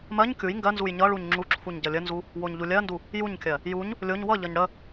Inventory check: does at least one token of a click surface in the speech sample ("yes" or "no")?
yes